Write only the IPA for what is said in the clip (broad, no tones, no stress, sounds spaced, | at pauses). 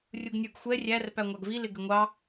rʲ u ɡ nʲ ə˞ ɡ xʷ ɛ rʲ æ r p æ ŋʷ ɑ ɡ v i l ɪ ɡ ɪ ŋʷ ɑ